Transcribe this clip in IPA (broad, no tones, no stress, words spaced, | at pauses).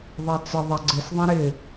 ðˤat͡sə ðˤaɡ͡ǀɪsðˤã ɾɪ